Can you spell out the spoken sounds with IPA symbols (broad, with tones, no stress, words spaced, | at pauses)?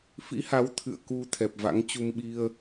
fḭ˧˥ha˨˦w t̪ʰɨ̰˧˨ə̯ku˧ t̪ʰɛ˨˩p̚va̰˧˥ŋt͡ɕu˧m ɓi˧ə̯